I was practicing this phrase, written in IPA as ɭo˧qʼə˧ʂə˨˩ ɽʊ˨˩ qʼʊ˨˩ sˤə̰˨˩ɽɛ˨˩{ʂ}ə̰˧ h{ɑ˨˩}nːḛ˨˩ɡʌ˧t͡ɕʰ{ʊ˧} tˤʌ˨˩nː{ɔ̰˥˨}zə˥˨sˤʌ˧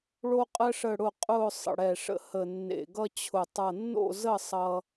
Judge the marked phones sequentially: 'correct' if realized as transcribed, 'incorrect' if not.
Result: correct, incorrect, incorrect, incorrect

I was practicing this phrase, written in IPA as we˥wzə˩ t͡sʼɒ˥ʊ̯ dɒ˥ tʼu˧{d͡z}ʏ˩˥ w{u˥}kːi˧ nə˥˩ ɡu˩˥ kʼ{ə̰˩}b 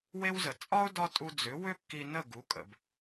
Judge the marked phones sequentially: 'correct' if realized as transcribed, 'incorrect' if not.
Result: correct, incorrect, correct

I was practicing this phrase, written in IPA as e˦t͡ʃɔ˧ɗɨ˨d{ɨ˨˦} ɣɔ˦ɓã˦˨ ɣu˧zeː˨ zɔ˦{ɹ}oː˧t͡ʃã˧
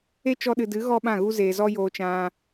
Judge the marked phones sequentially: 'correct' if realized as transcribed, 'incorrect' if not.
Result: correct, incorrect

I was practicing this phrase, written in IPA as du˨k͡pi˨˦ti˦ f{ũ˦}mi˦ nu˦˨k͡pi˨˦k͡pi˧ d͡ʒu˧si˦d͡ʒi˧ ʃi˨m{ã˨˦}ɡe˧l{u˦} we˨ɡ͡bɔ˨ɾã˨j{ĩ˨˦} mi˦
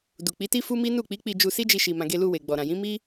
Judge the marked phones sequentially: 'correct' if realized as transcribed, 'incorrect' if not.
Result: incorrect, incorrect, incorrect, correct

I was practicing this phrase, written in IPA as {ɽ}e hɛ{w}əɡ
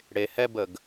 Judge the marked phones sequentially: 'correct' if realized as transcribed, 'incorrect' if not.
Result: correct, incorrect

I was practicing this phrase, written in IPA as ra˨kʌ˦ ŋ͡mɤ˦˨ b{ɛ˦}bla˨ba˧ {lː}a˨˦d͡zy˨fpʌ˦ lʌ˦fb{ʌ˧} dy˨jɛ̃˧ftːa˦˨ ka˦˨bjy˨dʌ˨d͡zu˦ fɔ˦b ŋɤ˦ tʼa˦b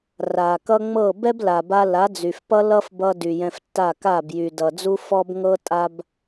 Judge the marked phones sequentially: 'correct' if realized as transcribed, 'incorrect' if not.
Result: correct, incorrect, correct

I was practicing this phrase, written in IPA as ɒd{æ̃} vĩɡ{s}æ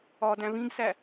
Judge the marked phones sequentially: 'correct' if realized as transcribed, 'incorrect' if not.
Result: correct, correct

